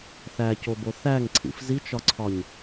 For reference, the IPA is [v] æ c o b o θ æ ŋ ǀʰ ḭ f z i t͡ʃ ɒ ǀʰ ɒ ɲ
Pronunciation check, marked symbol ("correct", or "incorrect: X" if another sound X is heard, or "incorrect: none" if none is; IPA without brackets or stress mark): incorrect: θ